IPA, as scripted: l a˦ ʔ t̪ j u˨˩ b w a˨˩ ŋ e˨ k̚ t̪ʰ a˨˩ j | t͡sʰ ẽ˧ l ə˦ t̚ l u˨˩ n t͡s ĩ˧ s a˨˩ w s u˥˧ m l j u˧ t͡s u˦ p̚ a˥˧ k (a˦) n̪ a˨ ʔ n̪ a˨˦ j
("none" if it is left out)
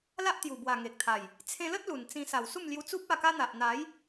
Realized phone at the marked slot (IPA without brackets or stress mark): a˦